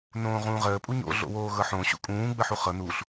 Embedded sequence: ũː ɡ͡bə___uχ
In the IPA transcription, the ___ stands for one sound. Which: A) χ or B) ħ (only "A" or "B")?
B